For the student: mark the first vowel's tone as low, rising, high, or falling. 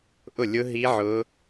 falling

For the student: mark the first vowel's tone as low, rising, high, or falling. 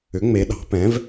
rising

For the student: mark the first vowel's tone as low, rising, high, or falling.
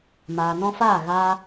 low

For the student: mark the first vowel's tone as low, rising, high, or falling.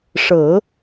low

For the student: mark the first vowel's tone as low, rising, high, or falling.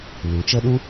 rising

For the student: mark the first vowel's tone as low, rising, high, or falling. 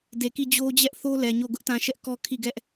low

